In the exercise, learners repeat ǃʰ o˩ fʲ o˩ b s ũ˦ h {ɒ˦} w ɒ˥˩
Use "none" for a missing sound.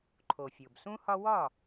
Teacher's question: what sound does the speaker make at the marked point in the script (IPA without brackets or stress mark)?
ɒ˦